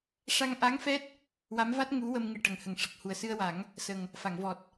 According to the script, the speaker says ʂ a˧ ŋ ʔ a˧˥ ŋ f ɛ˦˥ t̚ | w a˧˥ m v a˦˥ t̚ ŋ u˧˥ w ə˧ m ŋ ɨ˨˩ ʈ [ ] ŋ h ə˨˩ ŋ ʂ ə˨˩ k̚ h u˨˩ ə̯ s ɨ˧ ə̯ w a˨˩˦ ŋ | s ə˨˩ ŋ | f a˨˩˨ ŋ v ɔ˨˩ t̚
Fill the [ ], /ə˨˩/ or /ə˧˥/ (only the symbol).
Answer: ə˨˩